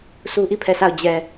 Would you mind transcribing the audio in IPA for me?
sʰu˦ʔi˦˨pʰɛ˦˨sa˦˨ʊ̯ d͡ʑɛ˨

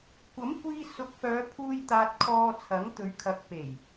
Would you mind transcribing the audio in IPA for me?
kʷɐ˨˥mkʷiː˧ sʊ˨˥k̚fœː˨˧pʰuː˧j t̪aː˧t̚kʰɔː˧t͡sʰɐ˨˥ŋ t̪ɵ˨˧ɥkʰɐ˨˥k̚pe˨˩j

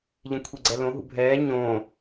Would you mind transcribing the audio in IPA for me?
ʎɛ̃kʷʰiɡ͡ǀɛlõ ɦṵbʱɛː ɲõː

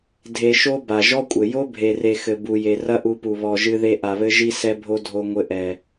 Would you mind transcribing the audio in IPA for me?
dʱe˨ʃo˧ ba˨ʒɔ˦kʷʼɘ˨ jo˦bʱe˨re˨ xɘ˨ bu˨ je˨rɐ˦ʔu˧pu˨ βɔ˨ʒɨ˧ðe˧ ʔa˨βɘ˧ʒi˧ sɛ˧bʱo˧ dʱo˧ŋʷɘ˧ʔɛ˨

